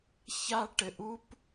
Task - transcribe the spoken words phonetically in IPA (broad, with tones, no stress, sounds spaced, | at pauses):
ç a˦ ʈ ɘ˧ ʔ u˦ p